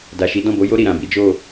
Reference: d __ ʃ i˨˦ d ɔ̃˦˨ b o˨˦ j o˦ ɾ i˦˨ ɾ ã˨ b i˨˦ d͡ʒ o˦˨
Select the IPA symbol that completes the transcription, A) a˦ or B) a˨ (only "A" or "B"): B